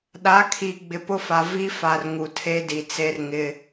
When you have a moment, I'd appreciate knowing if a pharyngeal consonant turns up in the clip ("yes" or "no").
no